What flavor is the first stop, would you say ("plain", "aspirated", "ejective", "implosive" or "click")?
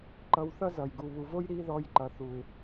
click